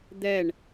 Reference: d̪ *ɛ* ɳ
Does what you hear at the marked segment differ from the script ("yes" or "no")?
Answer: no